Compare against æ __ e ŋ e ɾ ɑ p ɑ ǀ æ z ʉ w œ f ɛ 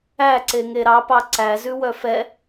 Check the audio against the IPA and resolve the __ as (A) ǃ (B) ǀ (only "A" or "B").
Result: B